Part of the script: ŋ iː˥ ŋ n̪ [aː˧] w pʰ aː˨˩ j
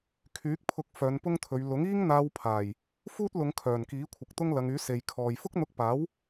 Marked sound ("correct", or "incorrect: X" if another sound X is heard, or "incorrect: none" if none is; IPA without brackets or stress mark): correct